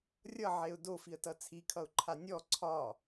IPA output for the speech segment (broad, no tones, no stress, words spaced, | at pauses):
rʲʌʕeʊ̯ dofiə̯tʌ t͡sʰikʰʌʊ̯ǃʰa nʲɔ ǀʰɒ